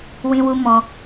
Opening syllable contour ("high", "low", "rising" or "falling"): high